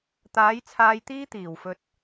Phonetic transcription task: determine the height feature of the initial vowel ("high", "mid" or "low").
low